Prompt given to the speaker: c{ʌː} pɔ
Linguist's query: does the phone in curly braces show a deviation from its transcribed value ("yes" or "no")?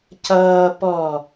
no